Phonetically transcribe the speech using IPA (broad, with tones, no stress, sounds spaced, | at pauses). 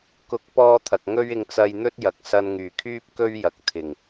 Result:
k ʊ˨˥ k̚ p ɔː˧ t̪ʰ ɐ˨ k̚ ŋ ɵ˥ ɥ ɪ˧ ŋ t͡s ɐ˧ j n̪ ɵ˥ t̚ j ɐ˨ k̚ s ɐ˧ n ŋ yː˨˩ kʰ yː˥ p̚ k ɵ˥ ɥ j ɐ˨ k̚ t̪ʰ ɪ˨˩ ŋ